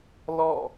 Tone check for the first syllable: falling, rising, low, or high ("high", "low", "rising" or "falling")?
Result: falling